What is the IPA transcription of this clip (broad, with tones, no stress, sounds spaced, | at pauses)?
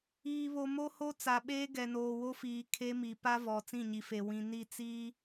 iː˨ β o˨ m o˦ h o˦ t͡s a˨ ɓ eː˦ ɡ ɛ˨ n oː˨ w o˦ f iː˨ kʰ e˦ m i˨ p a˦ v ɔ˨ t͡s ĩ˦˨ ɲ i˨ f e˨ w ĩ˨ n i˦˨ t͡s iː˦